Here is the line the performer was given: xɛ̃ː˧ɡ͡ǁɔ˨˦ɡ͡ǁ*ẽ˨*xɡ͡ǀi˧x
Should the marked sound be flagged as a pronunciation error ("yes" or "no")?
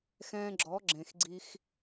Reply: no